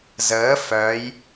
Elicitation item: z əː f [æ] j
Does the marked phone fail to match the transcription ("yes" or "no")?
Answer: yes